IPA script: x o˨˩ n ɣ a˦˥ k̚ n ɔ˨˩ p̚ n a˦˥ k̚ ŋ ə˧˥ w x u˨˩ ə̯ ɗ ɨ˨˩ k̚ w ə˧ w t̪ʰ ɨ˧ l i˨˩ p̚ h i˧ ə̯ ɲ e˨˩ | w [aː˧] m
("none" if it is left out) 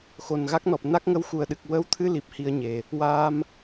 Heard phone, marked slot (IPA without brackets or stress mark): aː˧